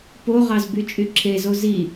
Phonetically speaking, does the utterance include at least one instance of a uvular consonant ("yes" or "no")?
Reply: yes